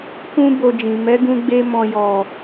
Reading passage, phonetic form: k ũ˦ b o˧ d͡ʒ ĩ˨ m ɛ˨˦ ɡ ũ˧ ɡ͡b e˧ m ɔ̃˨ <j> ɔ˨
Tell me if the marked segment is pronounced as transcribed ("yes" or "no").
yes